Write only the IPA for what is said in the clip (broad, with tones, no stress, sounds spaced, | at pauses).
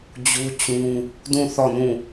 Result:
d͡ʑ u˦ t͡ɕ ũ˦ | d ũ˦˨ θ ɔ˦˨ n ũ˦˨